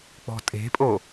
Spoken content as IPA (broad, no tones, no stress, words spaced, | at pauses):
k͡pɔ̤tʼe̤pʼo